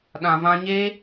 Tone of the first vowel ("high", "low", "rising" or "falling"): low